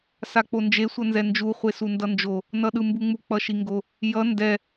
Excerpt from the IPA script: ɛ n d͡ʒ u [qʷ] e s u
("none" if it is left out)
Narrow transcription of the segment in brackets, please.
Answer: χʷ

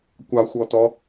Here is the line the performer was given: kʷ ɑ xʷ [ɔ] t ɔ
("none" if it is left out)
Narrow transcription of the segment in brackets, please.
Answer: ɔ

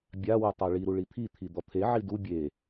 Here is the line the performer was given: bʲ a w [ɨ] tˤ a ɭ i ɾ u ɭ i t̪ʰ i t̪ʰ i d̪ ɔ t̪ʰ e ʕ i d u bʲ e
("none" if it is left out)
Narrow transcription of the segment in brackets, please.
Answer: ɨ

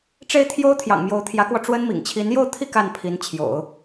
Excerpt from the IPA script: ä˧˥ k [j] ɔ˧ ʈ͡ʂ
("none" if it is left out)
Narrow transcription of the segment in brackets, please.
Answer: w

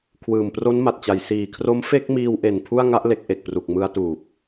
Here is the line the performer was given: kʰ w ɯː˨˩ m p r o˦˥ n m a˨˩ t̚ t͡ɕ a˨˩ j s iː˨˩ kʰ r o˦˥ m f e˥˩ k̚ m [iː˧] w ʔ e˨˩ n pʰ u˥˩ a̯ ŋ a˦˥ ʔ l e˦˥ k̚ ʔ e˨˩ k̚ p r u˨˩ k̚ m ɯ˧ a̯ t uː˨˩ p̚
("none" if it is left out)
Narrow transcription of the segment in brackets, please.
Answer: iː˧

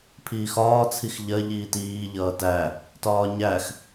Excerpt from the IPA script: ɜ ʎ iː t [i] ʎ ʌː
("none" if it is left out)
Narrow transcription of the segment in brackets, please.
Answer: iː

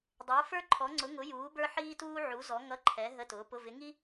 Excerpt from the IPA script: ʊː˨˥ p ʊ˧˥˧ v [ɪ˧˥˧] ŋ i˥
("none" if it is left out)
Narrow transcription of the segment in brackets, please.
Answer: ɪ˨˥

